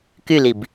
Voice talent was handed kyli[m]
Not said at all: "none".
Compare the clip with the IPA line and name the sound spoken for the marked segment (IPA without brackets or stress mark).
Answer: b